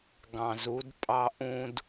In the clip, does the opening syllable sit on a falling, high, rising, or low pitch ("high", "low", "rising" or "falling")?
low